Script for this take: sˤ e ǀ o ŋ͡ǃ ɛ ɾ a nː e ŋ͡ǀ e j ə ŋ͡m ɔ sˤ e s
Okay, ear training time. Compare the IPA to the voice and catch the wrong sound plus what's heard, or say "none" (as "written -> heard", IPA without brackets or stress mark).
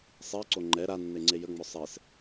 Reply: none